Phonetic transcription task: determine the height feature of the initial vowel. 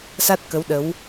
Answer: low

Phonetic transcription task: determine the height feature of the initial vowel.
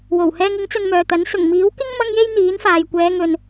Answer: mid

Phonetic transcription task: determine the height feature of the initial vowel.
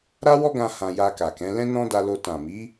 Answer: low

